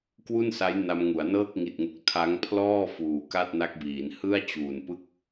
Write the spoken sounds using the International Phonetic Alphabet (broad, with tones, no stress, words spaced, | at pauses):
kwu˥˩nsa˦˥j na˧mŋu˩˦a̯ nɤː˥˩k̚ŋi˨˩t̚ŋu˨˩k̚ tʰa˦˥ŋpʰlɔː˥˩ fuː˨˩ka˥˩t̚na˦˥k̚biː˩˦n hɯ˥˩a̯t͡ɕuː˨˩npɯ˥˩k̚